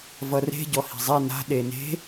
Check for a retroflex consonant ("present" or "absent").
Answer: absent